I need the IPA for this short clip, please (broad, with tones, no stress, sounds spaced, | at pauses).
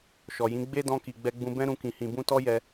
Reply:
ʃ ɔ˨ j ĩ˨˦ ɡ͡b e˦ d ɔ̃˧ k i˨ ɡ͡b ɛ˧ ɡ͡b ũ˧ b ɛ̃˦ ɾ ũ˧ k ĩ˨ h ĩ˨ b ũ˧ t ɔ˦ j ɛ˧